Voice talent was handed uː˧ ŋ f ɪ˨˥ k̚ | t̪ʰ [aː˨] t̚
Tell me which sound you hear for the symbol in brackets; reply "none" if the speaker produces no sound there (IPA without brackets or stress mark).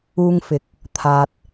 aː˨